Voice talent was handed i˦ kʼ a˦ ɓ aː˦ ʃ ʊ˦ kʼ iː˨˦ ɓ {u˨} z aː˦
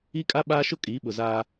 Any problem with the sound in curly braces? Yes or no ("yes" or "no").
yes